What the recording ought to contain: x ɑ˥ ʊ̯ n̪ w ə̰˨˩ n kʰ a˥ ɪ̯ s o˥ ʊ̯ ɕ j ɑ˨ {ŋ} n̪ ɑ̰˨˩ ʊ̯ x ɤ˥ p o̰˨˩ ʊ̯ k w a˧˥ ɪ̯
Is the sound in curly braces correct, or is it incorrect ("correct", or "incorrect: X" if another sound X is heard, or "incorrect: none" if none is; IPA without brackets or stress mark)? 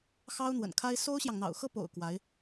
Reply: correct